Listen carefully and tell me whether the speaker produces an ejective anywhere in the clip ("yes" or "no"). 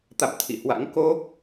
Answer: no